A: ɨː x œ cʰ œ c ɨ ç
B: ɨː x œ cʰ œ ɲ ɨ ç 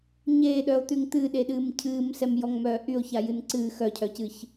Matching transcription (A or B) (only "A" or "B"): A